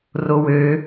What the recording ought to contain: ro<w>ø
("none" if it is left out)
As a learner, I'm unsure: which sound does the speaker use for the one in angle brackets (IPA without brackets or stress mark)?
w